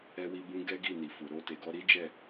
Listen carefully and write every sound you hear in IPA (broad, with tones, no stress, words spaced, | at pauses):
ɛ˧wi˧bũ˧ ɡɛ˦ɡi˦˨ni˨fu˨ ɾo˧te˨ɡɔ˧ ɾi˦d͡ʒɛ˦˨